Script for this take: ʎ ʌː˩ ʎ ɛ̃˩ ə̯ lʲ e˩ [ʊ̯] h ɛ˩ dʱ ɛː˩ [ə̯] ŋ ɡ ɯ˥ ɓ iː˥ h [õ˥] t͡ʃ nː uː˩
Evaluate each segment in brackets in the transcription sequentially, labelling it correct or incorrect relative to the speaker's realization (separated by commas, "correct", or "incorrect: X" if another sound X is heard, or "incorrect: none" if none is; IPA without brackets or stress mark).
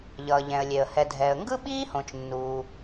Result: incorrect: ə̯, correct, incorrect: õ˩